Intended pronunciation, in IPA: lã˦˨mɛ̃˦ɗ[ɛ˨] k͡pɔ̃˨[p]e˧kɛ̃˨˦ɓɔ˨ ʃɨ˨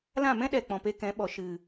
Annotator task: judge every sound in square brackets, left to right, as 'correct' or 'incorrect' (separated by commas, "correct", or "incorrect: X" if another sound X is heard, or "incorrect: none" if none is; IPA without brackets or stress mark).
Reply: correct, correct